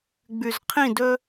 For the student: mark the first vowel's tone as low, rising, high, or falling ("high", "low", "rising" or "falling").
low